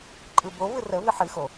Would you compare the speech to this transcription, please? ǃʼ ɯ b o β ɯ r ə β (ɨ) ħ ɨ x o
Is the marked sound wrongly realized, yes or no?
no